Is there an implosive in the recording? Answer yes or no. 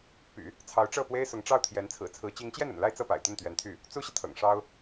no